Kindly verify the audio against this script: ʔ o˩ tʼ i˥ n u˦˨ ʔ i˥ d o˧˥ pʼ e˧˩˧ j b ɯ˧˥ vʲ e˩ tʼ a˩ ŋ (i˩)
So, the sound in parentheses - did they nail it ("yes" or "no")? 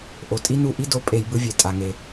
no